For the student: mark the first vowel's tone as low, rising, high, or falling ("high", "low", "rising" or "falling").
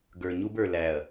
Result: low